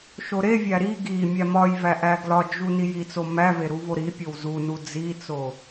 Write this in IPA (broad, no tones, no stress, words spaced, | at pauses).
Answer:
ʃoɾevʲæ ɾi ɡi mʲæmɒjvæ ʔæɡlɒd͡ʒu nijit͡so mæve ɾuvoɾipʲow zunu d͡zit͡so